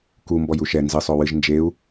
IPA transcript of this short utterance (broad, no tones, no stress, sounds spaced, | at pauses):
k u m b ɔ j u ʃ ɛ n z ɨ sˤ o w ɨ ʒ n d͡ʒ e u̯